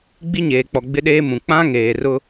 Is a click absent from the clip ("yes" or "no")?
yes